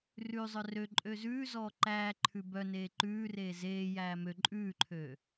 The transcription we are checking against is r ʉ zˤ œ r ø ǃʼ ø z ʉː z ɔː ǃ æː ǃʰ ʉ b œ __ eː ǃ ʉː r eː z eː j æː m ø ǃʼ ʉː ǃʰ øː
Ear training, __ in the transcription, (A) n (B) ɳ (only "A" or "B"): A